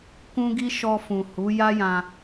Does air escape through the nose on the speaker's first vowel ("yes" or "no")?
yes